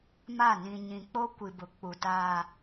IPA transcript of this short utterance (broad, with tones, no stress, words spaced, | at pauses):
ma˦˨ nĩ˨ɲĩ˨k͡po˦ kʷi˨bʊ˨ k͡pu˨ taː˦